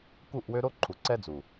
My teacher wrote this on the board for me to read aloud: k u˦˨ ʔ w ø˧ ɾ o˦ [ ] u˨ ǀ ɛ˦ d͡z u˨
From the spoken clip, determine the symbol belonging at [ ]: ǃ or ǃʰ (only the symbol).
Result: ǃʰ